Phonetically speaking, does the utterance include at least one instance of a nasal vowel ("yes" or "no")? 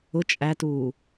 no